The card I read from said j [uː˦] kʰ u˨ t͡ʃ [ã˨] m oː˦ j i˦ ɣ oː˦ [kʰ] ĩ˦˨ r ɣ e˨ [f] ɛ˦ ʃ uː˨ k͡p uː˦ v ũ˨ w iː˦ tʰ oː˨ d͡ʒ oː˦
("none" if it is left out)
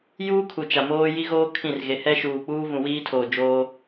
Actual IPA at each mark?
uː˦, a˨, kʰ, h

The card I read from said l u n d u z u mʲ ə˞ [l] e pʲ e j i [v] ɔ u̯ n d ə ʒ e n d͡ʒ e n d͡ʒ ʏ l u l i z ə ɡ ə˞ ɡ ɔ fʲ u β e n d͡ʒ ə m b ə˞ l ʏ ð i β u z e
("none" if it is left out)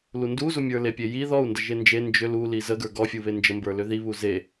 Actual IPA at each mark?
l, ð

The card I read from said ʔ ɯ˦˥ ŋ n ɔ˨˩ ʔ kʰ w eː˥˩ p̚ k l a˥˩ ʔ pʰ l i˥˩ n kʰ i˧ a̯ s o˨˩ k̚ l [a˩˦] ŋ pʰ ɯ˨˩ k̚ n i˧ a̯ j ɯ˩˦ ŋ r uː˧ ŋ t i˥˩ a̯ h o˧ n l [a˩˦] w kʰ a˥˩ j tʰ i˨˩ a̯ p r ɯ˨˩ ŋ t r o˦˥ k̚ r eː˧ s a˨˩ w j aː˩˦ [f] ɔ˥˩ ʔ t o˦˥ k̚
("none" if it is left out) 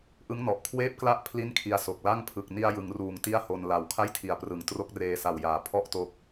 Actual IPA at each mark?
a˥˩, a˩˦, pʰ

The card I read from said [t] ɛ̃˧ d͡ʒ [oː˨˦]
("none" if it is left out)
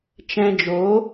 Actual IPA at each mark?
t͡ʃ, oː˨˦

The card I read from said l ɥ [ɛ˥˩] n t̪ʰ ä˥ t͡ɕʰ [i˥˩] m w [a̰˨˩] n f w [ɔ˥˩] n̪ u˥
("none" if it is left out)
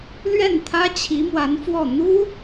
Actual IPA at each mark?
ɛ˥˩, i˧˥, a˧˥, ɔ˥˩

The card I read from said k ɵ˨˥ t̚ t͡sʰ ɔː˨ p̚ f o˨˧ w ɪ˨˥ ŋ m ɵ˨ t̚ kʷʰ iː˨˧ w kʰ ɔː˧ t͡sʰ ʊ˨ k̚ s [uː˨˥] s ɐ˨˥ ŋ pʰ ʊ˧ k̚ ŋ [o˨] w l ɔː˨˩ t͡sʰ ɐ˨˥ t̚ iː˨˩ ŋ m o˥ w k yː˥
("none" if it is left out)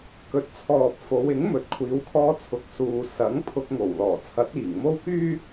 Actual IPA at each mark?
uː˨, o˨˩

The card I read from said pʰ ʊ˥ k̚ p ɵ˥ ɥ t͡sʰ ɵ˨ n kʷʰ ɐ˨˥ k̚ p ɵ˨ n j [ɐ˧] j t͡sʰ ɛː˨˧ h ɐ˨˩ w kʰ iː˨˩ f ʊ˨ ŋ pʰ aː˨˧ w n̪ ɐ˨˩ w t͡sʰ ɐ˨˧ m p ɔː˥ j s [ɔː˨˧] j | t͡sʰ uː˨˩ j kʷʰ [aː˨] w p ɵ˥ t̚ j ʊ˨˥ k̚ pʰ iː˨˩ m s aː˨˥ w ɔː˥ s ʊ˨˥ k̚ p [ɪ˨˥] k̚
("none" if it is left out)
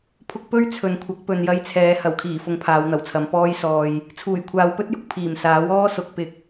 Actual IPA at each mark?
ɐ˧, ɔː˧, aː˨, ɪ˨˥

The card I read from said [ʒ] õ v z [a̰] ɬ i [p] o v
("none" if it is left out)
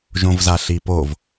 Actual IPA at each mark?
ʒ, a, p

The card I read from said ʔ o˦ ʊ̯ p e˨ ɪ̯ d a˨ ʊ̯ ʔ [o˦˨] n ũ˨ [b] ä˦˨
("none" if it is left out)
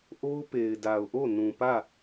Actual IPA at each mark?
o˦˨, p

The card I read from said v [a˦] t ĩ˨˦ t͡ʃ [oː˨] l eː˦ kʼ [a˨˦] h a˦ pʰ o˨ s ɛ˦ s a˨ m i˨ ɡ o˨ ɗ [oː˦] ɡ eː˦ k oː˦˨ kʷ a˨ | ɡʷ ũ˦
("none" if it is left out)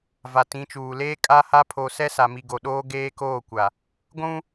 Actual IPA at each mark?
a˨, uː˨, a˦, oː˦

